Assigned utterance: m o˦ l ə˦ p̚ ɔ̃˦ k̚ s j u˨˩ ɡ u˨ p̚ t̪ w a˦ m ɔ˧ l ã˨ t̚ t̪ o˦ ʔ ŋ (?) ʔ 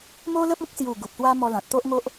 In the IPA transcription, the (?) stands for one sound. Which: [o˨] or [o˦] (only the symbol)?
o˦